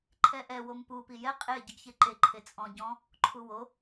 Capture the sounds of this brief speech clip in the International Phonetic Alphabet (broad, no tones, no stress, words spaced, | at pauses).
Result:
ǃʰɛʔɛ wompu pijɛ qʼe ɟɯɡçeǃe ǃʰet͡sʼɔ̃ ɟɔ̃ | ǃʰuwo